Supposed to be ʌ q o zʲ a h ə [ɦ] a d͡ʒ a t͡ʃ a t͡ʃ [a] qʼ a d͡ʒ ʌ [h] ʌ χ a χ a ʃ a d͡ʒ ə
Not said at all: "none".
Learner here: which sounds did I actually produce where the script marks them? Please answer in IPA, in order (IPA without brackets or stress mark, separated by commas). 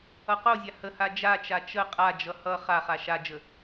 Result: h, ə, h